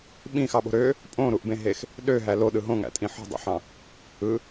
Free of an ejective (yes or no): no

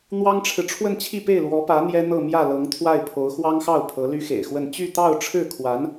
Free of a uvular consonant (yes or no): yes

